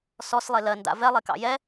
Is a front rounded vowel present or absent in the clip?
absent